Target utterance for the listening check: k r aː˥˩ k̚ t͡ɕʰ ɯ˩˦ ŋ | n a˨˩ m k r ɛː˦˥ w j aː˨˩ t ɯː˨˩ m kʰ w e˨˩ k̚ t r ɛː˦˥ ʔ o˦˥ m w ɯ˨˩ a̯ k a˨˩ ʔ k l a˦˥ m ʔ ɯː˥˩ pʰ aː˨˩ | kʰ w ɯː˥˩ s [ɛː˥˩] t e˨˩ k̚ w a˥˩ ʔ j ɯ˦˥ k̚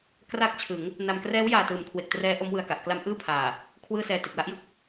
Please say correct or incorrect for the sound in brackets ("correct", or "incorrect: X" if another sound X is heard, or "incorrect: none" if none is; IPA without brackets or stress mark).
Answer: incorrect: ɛː˧